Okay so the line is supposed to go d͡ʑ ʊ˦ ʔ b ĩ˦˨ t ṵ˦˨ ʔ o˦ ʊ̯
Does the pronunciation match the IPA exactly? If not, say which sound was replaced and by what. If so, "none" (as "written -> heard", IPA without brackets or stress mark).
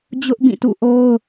none